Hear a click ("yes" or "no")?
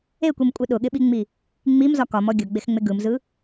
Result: no